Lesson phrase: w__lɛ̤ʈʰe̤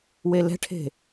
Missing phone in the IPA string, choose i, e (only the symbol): e